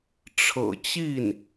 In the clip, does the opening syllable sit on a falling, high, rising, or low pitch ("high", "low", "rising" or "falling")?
low